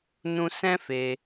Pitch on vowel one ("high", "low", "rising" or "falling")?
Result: high